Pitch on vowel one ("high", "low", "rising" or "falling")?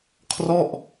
falling